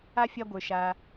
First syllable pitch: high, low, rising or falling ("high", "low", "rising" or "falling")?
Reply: high